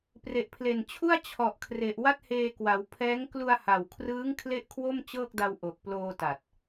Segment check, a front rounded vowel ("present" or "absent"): absent